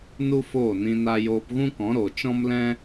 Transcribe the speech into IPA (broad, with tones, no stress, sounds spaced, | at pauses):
n u˦ f oː˦˨ n ĩ˧ n a˦ j oː˧ p ɣ ũ˦ k ɔ̃˨˦ ɾ o˨ t͡ʃ ɔ̃˦ m l ɛ̃˦